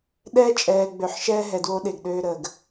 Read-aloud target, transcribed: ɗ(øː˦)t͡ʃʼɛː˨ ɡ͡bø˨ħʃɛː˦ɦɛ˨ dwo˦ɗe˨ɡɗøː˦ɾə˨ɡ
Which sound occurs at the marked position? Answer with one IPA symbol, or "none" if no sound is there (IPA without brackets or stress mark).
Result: ɛː˦